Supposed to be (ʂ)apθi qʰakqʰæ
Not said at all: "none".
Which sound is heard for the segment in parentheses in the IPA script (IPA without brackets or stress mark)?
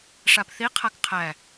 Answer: ʂ